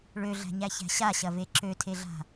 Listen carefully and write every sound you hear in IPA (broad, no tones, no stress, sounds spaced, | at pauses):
ɭ ø ɮ æ̤ ɲ æ ç æ̤ ɕ a ɕ ɐ v e ǁ ø tʰ e ɮ a̤